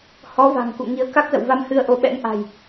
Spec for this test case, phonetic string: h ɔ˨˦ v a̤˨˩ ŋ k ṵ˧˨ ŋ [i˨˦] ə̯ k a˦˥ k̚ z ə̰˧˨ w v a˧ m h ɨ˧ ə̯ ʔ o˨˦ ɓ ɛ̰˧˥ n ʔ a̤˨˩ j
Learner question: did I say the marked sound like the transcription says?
yes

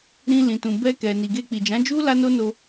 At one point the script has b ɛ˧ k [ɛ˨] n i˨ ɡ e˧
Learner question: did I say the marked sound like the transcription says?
yes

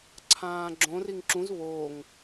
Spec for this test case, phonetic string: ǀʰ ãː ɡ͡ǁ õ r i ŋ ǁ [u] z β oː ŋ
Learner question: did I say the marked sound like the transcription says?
no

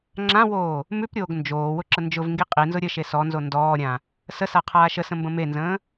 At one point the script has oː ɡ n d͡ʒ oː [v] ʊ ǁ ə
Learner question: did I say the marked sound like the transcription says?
no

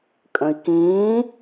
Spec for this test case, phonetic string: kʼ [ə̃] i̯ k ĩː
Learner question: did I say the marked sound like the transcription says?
yes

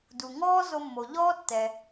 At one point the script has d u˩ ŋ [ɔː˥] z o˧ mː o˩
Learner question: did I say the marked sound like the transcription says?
yes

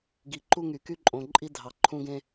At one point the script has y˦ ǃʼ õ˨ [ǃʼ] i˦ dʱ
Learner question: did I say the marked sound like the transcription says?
yes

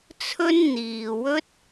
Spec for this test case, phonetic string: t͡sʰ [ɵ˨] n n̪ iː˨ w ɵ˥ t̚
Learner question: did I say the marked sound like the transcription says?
no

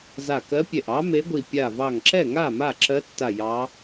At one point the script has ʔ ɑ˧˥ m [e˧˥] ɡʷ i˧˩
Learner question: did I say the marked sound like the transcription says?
yes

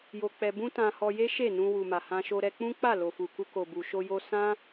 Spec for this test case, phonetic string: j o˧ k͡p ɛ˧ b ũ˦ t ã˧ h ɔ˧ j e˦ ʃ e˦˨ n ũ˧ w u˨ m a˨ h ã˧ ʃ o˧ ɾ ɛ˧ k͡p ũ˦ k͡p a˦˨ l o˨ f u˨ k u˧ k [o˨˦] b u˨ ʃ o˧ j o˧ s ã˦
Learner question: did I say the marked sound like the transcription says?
no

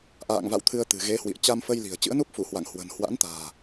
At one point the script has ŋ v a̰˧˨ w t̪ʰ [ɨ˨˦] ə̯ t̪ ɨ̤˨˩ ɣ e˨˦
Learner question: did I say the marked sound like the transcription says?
no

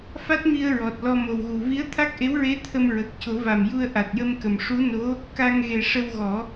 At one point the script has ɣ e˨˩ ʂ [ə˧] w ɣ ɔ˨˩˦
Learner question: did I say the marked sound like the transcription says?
yes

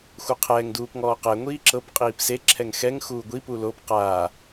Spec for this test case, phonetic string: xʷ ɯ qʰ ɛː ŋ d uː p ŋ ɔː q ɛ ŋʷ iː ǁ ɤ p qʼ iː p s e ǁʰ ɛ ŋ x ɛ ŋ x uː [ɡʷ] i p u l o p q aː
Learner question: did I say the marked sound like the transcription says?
yes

